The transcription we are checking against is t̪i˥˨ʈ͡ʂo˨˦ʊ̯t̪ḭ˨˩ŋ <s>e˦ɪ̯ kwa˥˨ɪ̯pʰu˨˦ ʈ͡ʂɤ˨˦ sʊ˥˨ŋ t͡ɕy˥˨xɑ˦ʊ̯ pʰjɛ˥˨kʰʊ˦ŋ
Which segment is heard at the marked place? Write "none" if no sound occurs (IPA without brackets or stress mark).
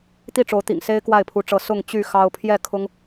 s